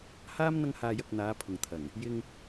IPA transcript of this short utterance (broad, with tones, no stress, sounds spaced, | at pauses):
h aː˥ m n̪ ɐ˥ ŋ h aː˧ j ɐ˧ k̚ n̪ aː˨˧ pʰ ʊ˨ ŋ t̪ʰ ɐ˨˩ ŋ | j ɪ˧ ŋ